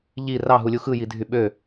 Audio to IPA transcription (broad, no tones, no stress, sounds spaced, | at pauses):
ʎ i r ɑ ɦ u lʲ u x ɯ j i dʱ y ɓ ø